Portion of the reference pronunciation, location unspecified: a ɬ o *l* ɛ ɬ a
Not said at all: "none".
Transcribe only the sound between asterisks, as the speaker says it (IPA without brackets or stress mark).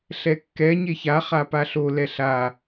l